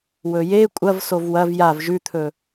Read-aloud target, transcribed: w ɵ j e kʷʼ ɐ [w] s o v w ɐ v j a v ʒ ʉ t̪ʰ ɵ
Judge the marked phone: incorrect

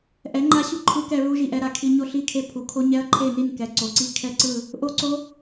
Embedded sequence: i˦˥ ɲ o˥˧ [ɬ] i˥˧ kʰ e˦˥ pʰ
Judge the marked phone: correct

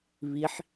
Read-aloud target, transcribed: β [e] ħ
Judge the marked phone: incorrect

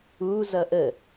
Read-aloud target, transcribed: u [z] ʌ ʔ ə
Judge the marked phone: correct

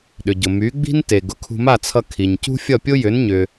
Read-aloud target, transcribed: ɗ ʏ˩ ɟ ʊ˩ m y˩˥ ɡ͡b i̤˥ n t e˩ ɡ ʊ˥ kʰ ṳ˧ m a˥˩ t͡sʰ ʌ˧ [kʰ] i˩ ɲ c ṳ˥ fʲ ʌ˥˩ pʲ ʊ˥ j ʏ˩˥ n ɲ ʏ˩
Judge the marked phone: correct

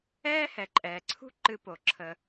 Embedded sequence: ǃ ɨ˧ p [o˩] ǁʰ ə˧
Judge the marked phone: correct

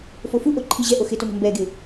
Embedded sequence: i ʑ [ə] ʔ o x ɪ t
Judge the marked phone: incorrect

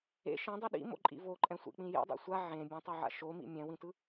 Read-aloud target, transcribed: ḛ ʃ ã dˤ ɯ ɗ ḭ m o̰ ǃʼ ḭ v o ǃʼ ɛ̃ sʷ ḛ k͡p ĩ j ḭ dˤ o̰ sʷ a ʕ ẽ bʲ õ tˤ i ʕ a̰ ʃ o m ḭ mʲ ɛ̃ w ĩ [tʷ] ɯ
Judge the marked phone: incorrect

